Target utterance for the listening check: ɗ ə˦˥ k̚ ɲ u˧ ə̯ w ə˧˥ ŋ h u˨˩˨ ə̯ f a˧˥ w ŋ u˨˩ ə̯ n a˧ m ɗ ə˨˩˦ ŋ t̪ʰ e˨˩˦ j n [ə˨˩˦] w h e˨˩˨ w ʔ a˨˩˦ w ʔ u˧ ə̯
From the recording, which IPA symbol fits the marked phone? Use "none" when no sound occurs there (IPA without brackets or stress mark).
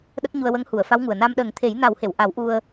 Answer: a˨˩˦